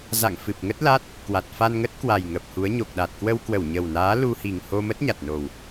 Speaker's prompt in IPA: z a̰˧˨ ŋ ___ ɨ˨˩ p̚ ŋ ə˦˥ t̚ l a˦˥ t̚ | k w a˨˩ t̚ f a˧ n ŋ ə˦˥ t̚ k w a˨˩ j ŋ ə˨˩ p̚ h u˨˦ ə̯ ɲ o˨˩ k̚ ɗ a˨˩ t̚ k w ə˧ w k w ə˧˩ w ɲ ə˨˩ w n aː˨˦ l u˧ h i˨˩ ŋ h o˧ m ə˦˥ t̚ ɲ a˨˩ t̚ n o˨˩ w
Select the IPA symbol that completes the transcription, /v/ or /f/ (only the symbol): f